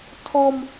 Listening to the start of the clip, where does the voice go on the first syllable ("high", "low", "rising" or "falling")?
high